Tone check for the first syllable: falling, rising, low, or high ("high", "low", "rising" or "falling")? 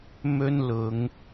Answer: high